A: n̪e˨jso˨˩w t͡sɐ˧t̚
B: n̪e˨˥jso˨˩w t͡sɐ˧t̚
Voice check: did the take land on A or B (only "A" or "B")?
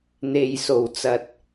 A